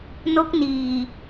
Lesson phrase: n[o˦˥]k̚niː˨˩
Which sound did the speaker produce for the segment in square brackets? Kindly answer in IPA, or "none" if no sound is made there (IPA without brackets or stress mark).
o˦˥